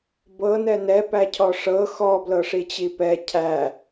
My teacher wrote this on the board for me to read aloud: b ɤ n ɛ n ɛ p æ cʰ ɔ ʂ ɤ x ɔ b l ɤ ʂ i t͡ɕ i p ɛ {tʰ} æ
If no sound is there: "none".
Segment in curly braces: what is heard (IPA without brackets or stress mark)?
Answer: cʰ